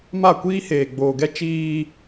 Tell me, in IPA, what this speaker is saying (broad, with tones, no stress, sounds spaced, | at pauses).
m a˦˨ kʷ iː˦ h eː˨ ɡ͡b oː˨ ɡ ɛ˦ t͡ʃ iː˦